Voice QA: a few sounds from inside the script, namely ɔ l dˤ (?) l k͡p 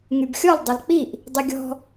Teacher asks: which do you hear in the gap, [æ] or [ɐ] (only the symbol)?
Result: ɐ